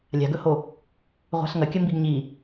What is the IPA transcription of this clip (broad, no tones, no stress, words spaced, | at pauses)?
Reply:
lʲa̤ɡɵho | ʁʷa̤ɬŋɐkʲɐ mbiɡɲi